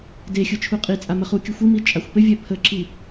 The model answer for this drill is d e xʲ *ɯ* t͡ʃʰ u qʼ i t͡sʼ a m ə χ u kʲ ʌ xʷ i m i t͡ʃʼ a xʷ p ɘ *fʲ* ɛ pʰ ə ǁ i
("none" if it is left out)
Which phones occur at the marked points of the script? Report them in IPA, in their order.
ɯ, vʲ

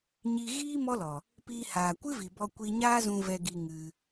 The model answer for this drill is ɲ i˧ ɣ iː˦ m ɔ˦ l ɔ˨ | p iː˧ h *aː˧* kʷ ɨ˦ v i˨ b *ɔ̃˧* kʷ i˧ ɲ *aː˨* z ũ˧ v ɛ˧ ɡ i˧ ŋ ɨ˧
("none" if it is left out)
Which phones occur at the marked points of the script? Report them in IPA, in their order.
aː˨, ɔ˧, aː˦

